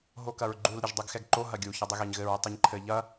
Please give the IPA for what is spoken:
ɦokɐɹɡ͡ǃul ɾʲɐʒdˤuɡxɛɡǃo ɦɐɡʲu çɐdˤɨɣɛɲɣɘɹ ɘtˤɨɲǃʰɘ ʎɐ

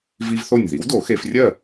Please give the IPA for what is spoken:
vi˥vθo˥˩nʲ ði˩˥wdo˨˩˦xe˧frʲɜ˥˩

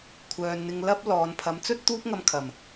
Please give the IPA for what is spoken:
kʷʰœː˨nn̪ɪ˧ŋlɐ˥p̚ lɔː˨˧n pʰɐ˨˥mt͡sɵ˥t̚t̪uː˥p̚ŋɐ˧m kʰɐ˨˩m

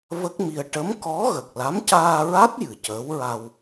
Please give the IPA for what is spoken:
və˦˥k̚mi˧ə̯ ʈə˧˥mkɔ˧˥ɣə˨˩k̚ la˧˥mcaː˧ɹa˦˥t̚ jɨ˨˩cəː˧˥wɹa˧w

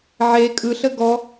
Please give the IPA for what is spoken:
ʕe kʼɯɬə ɡɔ

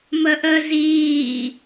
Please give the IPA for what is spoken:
məʔə ziː

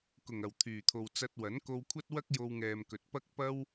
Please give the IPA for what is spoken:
kʊ˨˩ŋɐ˨˩w t̪ʰyː˨˩t̪ʰo˨w t͡sɐ˧t̚wɐ˨˥n ko˧wkʷʰɐ˥t̚wɐ˥k̚ jo˧wŋɛː˨mkɵ˨˥t̚ pɐ˥k̚pɐ˥w

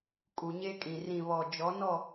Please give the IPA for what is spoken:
kʼu˨ɲe˦kʼĩ˨ rĩ˨βɔ˨ d͡ʒɔ˨˦nɔ˦˨

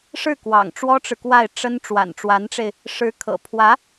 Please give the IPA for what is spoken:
ʂɻ̩˥˩ kwɑ̰˨˩ŋʈ͡ʂwɔ˥ʈ͡ʂɻ̩˨ kwa˥˩ɪ̯ʈ͡ʂə˥n ʈ͡ʂwa̰˨˩nʈ͡ʂwa˧˥nʈ͡ʂe˧ɪ̯ | ʂɻ̩˧˥kʰɤ̰˨˩ pʰwä˧˥

